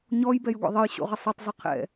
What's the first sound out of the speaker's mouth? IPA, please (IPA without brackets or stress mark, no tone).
ɲ